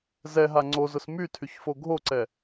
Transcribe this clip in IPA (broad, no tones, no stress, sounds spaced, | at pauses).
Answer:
z ɛ ɦ a ŋ͡ǀ o z ʊ s m y tʰ y ç f o ɡʱ o ǀ ɛ